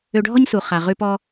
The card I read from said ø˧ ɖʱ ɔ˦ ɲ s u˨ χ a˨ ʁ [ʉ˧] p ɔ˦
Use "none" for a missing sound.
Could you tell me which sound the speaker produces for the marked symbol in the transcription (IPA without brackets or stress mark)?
ʉ˧